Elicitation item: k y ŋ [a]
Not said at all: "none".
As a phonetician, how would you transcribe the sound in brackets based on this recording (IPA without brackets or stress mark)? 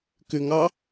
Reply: ɑ